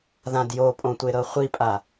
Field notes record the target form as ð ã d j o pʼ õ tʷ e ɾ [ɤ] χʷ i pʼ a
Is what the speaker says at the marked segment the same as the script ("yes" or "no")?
yes